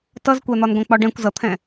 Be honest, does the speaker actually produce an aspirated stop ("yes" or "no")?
yes